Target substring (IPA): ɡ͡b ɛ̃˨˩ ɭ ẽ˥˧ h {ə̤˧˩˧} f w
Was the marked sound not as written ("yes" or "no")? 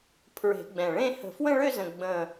no